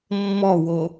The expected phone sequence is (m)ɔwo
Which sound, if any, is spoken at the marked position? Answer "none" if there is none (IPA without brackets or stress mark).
mː